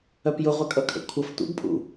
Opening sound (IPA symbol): œ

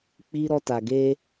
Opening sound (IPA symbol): k͡p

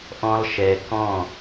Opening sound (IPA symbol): ʔ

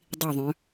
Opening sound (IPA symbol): dˤ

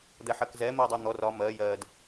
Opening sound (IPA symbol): d̪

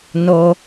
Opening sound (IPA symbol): n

